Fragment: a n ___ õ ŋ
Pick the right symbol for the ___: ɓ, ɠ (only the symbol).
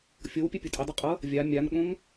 ɠ